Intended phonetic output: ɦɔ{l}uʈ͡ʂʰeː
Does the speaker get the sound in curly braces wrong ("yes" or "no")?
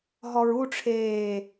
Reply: yes